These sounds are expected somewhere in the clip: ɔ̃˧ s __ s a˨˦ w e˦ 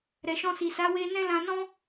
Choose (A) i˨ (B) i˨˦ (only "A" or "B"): A